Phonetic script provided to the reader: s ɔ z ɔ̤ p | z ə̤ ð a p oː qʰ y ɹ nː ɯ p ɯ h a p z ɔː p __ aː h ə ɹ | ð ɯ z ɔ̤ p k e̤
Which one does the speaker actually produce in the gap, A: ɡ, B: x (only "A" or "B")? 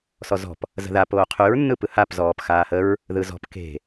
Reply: B